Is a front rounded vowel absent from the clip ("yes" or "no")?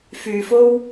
no